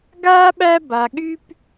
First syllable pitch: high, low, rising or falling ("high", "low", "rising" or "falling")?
high